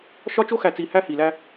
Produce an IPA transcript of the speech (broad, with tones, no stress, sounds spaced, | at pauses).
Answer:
ʃ ɒ˦ t͡ʃ o˦ x æ˨ t͡s i˨ h æ˦ h i˨ l æ˦